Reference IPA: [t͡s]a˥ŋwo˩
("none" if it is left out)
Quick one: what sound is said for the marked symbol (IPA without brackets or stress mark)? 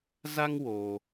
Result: z